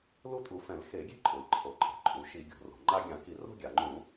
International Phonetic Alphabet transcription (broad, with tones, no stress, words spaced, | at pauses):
lu˥tʼu˧˩˧fɛ̃˧˩˧l xe˧˩˧ɡʲe̤˥ ǃʼʊ˩i̯ǃʰo˩ ǃʼe̤˩ ǃʼu˩ʃi˧˩˧ɡʲo̤˩ ro̤˩ŋ͡ǃa˥ ɡʲã˧˩˧ki˧˩˧ro̤˥ ɡʲa˩ŋ͡ǃũ˧˩˧